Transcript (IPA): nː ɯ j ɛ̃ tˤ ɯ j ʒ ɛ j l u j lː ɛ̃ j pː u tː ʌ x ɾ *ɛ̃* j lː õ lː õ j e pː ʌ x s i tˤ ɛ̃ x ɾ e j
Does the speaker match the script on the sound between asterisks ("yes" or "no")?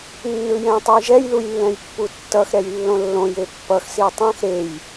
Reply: no